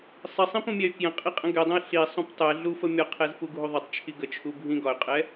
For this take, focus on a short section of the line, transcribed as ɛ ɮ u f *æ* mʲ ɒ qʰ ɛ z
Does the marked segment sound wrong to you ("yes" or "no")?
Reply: yes